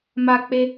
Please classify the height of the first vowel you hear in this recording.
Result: low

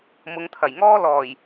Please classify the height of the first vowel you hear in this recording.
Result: high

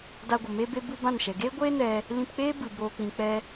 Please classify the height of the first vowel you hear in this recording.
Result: low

